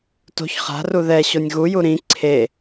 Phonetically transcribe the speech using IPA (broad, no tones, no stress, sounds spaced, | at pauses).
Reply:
t o̤ ç χ a̤ r u ð ɛ ɕ o nʲ ɣ u j u ɾ ĩ ǀʰ e